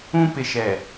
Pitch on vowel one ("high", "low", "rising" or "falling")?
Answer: high